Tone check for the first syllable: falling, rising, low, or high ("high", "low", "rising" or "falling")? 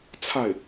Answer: falling